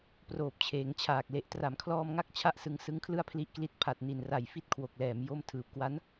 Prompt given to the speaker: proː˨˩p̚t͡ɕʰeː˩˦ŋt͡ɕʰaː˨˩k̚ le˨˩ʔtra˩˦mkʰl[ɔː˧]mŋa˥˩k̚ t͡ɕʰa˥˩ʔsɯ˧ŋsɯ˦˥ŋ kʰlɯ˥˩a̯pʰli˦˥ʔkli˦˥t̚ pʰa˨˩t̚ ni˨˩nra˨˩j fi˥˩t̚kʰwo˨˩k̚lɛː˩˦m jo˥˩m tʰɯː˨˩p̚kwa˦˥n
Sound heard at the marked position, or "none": ɔː˧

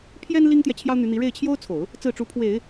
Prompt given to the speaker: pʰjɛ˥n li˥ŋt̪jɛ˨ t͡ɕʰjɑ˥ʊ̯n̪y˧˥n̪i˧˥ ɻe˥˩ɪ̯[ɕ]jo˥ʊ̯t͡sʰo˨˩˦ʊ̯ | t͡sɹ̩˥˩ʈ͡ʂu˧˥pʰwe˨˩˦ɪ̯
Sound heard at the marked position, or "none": t͡ɕʰ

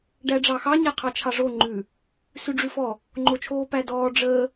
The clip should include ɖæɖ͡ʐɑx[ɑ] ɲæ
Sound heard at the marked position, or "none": ɑ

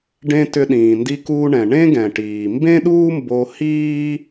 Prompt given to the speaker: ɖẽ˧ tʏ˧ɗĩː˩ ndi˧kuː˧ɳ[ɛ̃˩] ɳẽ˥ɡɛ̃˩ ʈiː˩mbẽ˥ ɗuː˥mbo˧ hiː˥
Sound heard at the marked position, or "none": ɛ̃˩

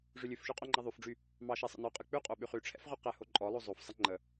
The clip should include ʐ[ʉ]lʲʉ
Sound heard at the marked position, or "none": ʉ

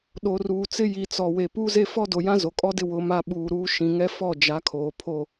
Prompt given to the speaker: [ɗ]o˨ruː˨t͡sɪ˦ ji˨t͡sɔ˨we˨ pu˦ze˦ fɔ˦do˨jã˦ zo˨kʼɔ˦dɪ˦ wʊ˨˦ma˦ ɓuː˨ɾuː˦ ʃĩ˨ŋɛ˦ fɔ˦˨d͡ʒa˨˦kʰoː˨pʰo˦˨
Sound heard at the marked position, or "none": ɗ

